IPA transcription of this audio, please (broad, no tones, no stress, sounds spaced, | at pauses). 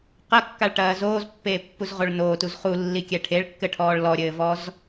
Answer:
q ɐ kː a ɭ ʈ ɐː z oː z pː eː pː u z ʁ o ɭ n oː t u z χ u lː i kʲ ɛ ʈʰ e ɭ kː ɘ ʈʰ ɔː ɭ l ɔ ɾʲ ɘː v ɔ z